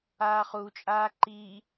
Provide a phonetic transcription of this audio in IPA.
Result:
aː χ u t͡ʃʼ aː ǃ i

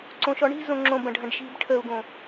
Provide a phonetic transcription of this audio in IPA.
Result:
ǀ õ ʃ ɔ ɳ i̤ z õ ŋ͡ǁ õ b ɐ̃ ɖʱ ɐ̃ ɖ ʃ i̤ b ʈʰ ə u̯ ɡ õ

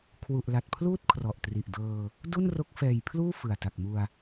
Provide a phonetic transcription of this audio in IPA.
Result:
kʰ w u˨˩ ʔ l a˨˩ t̚ pʰ l uː˥˩ t̚ kʰ r ɔ˨˩ ʔ t r i˨˩ ʔ d ɤː˧ | d u˥˩ n r o˦˥ k̚ f ɛː˨˩ j pʰ l uː˥˩ f ɯ˨˩ a̯ t a˨˩ k̚ m u˧ a̯

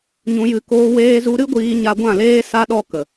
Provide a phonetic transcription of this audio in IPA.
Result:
ɲ ũ˧ j ɨ˧ k oː˧ w eː˧ z u˧ ɾ ɨ˦ ɡʷ iː˧ ɲ a˧ ɡʷ ã˦˨ l eː˦ s a˧ ɗ ɔ˧ k ə˨

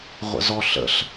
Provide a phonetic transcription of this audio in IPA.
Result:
ʁʷ ə̰ z ɔ ɬ ə̰ ɬ

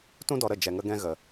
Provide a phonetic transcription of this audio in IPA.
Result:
t ũ˦ d ɔ˧ ɾ ə˦˨ d͡ʒ ɛ˨ ŋ ə˧ ɡ ɛ̃˧ ɣ ə˨

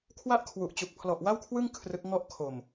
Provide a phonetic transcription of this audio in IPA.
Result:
kʰ w a˥˩ ʔ kʰ w u˨˩ ʔ t͡ɕ u˨˩ k̚ pʰ l ɔ˨˩ ʔ w a˥˩ w kʰ w ɯ˥˩ ŋ kʰ r ɯ˦˥ k̚ ŋ ɔ˥˩ ʔ kʰ o˨˩ m

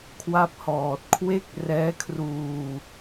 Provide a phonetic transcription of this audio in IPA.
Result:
kʰ w a˥˩ p̚ h ɔː˨˩ t̚ kʰ w e˥˩ k̚ r ɛː˦˥ kʰ r uː˧

